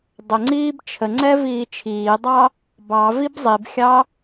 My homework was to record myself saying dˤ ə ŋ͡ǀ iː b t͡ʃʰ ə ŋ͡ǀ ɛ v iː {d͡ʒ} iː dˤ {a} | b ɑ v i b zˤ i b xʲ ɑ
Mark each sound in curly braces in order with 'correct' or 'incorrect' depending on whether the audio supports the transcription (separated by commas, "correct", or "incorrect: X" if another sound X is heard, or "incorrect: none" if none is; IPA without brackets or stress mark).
incorrect: t͡ʃʰ, incorrect: ɑ